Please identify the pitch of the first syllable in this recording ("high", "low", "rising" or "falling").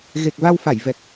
low